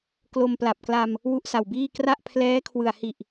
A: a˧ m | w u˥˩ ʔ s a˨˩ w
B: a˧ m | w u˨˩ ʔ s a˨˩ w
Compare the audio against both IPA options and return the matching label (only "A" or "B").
A